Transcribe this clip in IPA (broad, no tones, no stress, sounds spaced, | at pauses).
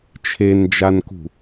t͡ʃʰ e n d͡ʒ a n k ṳ